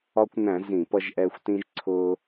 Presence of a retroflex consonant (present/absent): absent